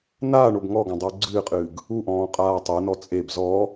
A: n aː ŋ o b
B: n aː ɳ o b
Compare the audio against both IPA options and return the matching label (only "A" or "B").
B